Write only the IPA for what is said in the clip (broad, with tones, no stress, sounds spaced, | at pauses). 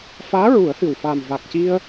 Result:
f aː˧˥ ɹ u˨˩˦ ə̯ h ɨ˨˩ w f aː˨˩ m v a˨˩ k̚ c i˧ ə̯